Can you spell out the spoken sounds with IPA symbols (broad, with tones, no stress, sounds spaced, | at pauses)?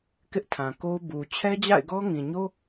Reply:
k ɪ˦ ʔ tʰ ã˨ k o˦ ʊ̯ b u˨ t͡ɕʰ ɛ˦ d͡ʑ a̰˦˨ ɪ̯ ɡ ɔ˦ ŋ ĩ˨ ɲ o˦